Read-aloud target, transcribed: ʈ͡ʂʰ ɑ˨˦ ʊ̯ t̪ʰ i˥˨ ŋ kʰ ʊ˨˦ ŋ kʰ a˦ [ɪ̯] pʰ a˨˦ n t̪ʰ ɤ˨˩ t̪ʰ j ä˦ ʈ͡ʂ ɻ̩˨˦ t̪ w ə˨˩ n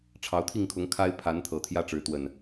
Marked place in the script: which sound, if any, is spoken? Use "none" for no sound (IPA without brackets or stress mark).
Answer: ɪ̯